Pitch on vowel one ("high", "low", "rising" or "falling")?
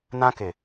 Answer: high